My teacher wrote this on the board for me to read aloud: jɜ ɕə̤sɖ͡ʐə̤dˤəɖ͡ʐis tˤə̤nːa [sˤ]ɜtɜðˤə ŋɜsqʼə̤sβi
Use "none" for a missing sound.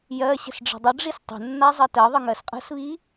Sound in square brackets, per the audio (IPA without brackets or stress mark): zˤ